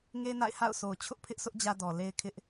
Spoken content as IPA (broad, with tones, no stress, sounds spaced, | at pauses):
ŋ e˦ n a̰˦˨ ɪ̯ h a̰˦˨ ʊ̯ sʰ o˨ ʊ̯ t͡ɕʰ ʊ˦ ʔ pʰ ɪ˦ ʔ sʰ ʊ˦ ʔ d͡ʑ ä˦ d ɔ˨ l e˦ ɪ̯ kʰ ɪ˦ ʔ